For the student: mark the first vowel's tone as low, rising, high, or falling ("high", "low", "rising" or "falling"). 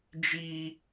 high